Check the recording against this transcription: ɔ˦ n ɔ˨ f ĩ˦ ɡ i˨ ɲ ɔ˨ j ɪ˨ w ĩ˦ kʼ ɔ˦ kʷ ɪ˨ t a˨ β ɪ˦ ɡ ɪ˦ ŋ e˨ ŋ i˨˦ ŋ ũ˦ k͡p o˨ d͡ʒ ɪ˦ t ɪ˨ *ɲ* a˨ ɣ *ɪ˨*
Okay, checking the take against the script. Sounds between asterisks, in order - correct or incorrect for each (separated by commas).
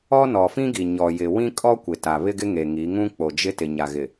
correct, correct